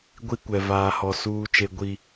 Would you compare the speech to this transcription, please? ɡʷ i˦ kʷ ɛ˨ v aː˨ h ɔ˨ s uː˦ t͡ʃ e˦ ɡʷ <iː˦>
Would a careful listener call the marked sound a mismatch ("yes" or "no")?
yes